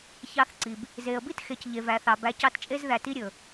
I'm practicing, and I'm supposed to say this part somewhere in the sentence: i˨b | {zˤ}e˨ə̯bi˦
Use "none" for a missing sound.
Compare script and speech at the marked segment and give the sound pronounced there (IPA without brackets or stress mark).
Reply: z